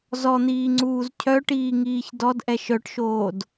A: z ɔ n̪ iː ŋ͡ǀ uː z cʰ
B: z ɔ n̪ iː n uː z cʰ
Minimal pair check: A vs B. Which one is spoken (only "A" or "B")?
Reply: A